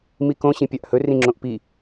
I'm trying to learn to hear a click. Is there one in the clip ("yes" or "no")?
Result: yes